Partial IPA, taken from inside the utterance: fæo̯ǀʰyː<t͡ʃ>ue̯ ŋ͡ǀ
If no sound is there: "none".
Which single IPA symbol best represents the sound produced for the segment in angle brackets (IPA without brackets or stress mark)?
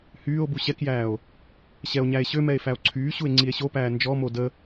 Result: ɕ